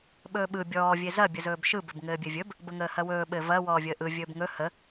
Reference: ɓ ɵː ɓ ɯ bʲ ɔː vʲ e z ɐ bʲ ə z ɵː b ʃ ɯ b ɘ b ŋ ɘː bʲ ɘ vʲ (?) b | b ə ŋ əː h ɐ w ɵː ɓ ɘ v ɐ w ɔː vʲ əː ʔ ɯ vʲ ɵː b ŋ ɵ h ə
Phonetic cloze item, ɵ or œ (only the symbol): ɵ